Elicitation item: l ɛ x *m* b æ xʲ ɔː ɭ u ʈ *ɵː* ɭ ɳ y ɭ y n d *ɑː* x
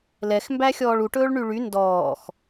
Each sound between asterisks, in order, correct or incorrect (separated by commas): correct, correct, incorrect